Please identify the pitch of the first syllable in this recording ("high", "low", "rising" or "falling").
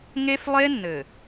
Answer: high